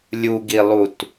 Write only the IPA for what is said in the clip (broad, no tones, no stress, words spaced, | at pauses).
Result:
lʲuɡilˠut